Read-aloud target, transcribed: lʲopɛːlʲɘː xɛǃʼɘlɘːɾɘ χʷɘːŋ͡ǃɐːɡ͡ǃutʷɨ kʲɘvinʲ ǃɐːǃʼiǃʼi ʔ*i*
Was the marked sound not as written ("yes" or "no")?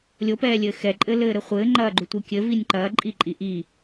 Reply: no